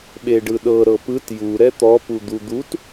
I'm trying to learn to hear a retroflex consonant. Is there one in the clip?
yes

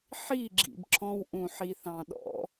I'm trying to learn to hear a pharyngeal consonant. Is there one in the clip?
yes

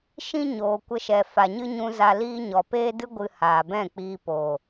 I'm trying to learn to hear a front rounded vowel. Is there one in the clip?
no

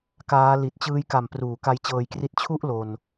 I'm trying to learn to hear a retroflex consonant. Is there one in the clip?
no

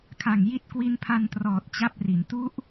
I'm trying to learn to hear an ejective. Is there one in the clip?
no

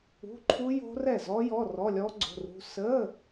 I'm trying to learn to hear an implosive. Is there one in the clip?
no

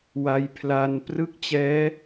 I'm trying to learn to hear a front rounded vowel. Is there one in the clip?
no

